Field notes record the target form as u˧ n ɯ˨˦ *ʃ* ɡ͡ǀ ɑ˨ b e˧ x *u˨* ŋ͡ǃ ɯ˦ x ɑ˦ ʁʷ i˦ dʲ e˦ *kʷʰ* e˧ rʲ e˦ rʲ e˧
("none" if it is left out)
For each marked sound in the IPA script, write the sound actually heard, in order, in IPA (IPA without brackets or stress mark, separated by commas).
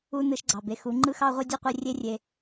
ʃ, u˨˦, qʷ